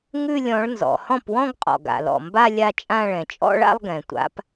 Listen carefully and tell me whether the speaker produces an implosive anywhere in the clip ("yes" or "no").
no